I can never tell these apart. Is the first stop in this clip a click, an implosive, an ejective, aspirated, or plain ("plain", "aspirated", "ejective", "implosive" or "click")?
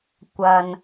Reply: plain